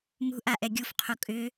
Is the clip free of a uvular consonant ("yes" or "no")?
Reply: no